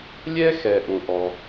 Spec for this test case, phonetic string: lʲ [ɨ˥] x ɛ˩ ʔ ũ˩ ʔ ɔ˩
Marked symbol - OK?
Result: no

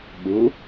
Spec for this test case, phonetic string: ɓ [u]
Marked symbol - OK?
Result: yes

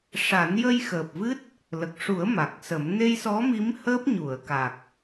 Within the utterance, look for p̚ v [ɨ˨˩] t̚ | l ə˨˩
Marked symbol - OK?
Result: no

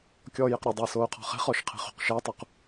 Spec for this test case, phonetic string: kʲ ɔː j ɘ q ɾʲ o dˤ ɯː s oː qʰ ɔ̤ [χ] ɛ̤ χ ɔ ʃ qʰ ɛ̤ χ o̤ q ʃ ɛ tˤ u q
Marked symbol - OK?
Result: yes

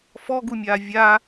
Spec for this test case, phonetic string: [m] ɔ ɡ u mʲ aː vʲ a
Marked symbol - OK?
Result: no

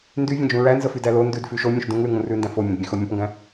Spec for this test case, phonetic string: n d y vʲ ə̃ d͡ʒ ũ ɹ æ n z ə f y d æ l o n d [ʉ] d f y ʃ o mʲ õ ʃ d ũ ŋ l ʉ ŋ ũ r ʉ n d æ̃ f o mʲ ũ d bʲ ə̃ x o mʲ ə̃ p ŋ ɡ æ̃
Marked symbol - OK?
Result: yes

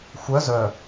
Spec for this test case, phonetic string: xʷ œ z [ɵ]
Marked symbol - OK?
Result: no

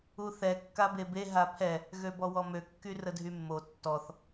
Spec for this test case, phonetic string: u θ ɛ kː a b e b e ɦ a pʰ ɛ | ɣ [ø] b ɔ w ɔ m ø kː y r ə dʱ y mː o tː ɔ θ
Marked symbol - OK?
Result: yes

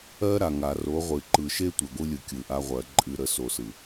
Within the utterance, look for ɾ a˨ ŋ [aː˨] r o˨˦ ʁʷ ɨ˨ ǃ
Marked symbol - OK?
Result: no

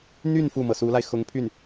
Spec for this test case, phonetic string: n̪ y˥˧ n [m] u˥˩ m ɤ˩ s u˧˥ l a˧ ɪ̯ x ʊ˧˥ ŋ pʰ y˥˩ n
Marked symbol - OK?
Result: no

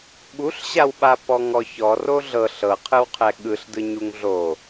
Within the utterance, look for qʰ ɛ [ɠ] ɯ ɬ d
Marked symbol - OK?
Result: yes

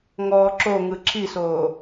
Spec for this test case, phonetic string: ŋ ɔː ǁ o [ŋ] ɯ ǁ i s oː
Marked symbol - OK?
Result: yes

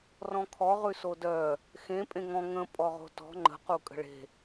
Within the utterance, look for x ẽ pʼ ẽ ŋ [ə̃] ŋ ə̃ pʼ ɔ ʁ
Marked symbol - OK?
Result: no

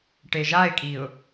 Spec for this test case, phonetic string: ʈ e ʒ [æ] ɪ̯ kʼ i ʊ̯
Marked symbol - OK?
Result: no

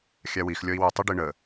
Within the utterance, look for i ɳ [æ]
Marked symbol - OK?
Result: no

